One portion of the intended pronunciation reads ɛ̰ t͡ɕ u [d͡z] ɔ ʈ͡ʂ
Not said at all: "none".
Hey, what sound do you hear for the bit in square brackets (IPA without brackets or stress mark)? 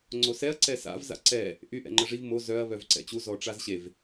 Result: z